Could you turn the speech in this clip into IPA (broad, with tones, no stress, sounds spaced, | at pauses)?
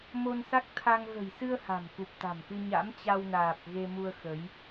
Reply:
m o˧ n s a˦˥ k̚ t̪ʰ a˧ ŋ ɣ ə̤˨˩ j s ɨ˧ ə̯ h a̤˨˩ m k u˨˩ p̚ t̪ a̤˨˩ m k ɨ˧ ɲ a̰˧˥ m t͡ɕ a˧ w n aː˨˩ p̚ ɣ e˧ m u˧ ə̯ x ə˨˦ j